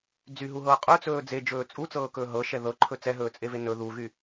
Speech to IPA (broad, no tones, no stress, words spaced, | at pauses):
d͡zyɦuɦɤː qʼɵt͡sɵː d͡zed͡ʒɵː t͡sʼut͡sɤːkɵː ɦɤʃɛ ðɤǃʰɵ t͡sɛɦɵːt͡sʼeve nɵ ðuɣy